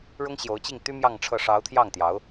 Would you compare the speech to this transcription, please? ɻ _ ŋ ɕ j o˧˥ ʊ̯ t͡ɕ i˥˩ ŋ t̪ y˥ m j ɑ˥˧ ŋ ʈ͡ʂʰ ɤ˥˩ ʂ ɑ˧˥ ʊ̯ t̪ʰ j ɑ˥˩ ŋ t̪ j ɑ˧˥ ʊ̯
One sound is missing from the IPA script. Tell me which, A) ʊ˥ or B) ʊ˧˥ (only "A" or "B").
A